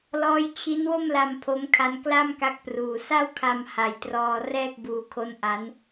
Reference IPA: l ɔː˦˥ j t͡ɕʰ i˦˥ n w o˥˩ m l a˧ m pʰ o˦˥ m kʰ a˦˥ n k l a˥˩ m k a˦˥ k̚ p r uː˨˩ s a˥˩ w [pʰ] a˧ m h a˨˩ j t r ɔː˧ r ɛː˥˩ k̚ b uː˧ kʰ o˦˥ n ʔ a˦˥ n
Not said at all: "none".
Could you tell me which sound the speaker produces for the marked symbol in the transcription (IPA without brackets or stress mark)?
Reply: kʰ